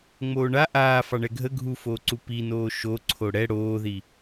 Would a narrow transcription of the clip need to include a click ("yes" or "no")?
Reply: yes